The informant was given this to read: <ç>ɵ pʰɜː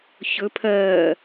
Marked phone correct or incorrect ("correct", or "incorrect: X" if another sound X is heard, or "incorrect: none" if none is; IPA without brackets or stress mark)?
correct